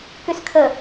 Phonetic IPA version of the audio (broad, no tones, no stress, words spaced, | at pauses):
kyskʰə